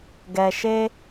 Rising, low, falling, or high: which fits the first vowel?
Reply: low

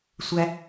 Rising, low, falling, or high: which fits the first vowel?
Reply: high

